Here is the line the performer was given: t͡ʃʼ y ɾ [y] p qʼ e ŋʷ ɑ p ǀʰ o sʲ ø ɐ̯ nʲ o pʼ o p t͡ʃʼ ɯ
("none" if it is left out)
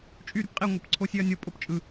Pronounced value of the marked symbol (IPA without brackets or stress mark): y